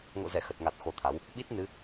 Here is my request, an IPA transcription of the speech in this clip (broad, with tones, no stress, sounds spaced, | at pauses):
ŋ o̰˧˨ z ɛ˧˩ x ə˨˩ t̚ ŋ a˨˩ t̚ x o˧ t̪ʰ a˨˦ w | ɓ i˦˥ t̚ n ɨ˨˦